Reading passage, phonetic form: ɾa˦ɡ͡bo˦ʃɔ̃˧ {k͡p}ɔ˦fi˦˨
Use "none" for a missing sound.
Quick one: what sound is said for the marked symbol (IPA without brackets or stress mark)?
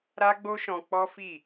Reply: k͡p